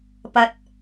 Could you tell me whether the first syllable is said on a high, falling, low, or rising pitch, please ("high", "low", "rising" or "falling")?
low